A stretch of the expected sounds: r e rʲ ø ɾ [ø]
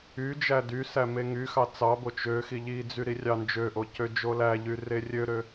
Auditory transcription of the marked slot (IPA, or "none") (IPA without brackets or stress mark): ø